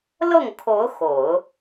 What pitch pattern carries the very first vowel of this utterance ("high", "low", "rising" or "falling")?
falling